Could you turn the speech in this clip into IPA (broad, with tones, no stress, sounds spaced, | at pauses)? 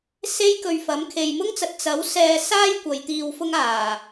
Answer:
s e˥ j k ɵ˧ ɥ f ɐ˨˥ m kʰ e˨ j m ʊ˥ ŋ t͡s ɐ˨ t̚ t͡s ɐ˨˥ w s ɛː˧ s aː˥ j kʷ ɐ˨˧ j t̪ iː˧ w f ʊ˥ ŋ aː˨˩